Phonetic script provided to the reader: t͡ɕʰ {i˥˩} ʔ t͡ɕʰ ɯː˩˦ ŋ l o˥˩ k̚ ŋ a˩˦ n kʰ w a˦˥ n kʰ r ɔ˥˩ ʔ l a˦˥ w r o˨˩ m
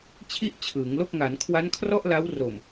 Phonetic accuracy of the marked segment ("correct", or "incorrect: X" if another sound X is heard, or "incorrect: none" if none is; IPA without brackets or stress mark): correct